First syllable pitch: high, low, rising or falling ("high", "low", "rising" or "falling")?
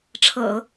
low